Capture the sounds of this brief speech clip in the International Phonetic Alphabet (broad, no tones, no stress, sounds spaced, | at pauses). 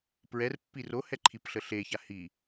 p ɹ ɛ r pː i r o h ɛ ǃʰ i p ɬ ə ɬ e ç a h i